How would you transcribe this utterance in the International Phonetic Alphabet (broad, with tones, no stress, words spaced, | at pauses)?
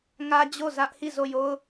ŋä˦d͡ʑo˦˨zä˦ʔ hi˦˨zo˦˨jo˦ʊ̯